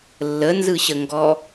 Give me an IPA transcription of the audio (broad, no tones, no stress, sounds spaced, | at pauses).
lː ə n z ɯ ɕ ə ŋ ɡ ɔ